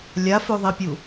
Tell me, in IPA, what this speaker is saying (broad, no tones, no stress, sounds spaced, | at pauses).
lʲ a f ʉ ðˤ i pʲ u